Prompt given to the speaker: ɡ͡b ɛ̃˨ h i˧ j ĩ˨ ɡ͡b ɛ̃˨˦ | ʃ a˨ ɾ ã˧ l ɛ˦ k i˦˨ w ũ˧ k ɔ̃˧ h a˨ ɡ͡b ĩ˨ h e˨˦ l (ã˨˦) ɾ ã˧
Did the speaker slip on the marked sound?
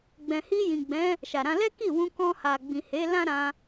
yes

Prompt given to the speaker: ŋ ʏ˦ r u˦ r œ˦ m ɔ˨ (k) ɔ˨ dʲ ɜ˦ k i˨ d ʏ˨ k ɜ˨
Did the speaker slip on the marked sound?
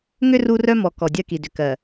no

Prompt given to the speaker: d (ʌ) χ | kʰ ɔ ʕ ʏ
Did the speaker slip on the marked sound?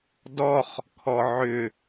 yes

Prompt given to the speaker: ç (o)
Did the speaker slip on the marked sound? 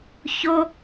no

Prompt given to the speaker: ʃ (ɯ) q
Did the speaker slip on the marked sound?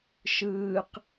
yes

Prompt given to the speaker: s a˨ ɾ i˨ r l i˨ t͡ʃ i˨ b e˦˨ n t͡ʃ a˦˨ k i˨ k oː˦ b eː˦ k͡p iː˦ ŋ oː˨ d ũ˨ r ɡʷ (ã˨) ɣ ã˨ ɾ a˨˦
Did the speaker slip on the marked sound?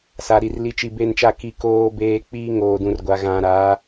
yes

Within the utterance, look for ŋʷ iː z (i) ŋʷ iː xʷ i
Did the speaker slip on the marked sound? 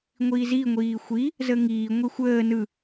no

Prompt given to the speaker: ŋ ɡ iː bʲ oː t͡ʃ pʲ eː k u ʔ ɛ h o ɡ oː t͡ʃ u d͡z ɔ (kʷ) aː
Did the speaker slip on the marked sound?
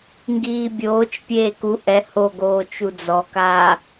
yes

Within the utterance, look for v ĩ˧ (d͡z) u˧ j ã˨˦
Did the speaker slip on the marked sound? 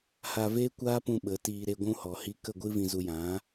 yes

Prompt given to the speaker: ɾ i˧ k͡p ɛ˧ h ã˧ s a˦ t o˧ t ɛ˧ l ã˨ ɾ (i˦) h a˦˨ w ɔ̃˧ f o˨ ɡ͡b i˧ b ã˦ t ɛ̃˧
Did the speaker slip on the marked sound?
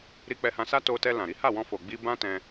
yes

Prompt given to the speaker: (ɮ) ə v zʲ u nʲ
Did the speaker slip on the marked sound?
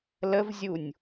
yes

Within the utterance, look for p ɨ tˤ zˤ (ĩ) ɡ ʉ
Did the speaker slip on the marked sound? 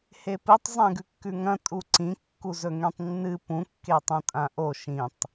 yes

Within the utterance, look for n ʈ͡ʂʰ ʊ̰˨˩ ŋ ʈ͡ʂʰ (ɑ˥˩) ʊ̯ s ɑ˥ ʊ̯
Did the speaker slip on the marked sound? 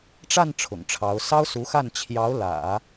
yes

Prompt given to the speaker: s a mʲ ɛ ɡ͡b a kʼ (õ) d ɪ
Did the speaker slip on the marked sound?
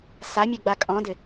yes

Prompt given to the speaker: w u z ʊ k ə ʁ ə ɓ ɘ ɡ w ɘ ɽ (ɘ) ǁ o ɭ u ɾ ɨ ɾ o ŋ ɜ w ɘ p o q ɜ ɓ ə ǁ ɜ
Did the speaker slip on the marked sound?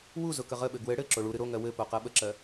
no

